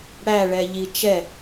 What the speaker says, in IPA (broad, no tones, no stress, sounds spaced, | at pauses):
ɽ æ ɭ ɛ ʎ i t͡ʃ ɛ